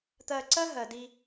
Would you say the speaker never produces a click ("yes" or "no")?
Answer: no